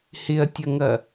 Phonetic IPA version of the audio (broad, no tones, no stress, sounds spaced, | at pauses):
h ɪ ɐ̯ tʲ ɐ ŋ ɐ